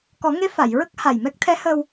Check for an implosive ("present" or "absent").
absent